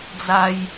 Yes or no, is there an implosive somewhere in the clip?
no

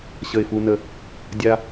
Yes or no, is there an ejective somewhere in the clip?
no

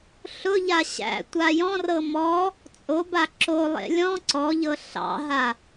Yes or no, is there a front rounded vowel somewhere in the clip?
no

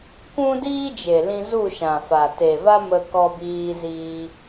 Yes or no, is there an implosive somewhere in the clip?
no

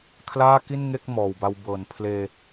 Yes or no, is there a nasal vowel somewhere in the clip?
no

